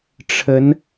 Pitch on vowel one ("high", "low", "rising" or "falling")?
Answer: rising